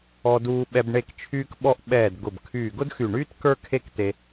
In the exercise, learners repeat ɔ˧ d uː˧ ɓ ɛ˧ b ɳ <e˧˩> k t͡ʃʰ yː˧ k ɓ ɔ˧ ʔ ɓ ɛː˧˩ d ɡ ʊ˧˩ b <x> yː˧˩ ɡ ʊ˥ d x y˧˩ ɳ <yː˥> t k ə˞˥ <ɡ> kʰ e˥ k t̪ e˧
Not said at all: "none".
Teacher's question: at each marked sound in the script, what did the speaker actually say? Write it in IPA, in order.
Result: e˧˩, kʰ, yː˥, none

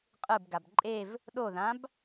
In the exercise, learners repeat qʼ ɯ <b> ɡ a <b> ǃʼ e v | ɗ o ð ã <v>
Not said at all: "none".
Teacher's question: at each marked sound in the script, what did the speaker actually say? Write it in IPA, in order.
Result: b, b, b

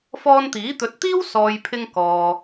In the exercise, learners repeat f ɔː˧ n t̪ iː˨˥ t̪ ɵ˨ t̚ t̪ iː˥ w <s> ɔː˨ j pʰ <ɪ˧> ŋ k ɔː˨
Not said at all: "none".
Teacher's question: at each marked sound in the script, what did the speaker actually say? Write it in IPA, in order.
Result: s, ɪ˧

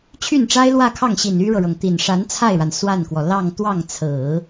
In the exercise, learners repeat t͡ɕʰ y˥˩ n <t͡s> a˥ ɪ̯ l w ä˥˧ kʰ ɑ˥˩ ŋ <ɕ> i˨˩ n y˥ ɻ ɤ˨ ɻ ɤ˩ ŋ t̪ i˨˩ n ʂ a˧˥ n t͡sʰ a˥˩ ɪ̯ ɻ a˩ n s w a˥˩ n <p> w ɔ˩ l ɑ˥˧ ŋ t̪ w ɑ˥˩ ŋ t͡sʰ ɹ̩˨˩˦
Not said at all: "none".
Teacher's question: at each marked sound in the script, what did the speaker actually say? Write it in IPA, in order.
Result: ʈ͡ʂ, ɕ, k

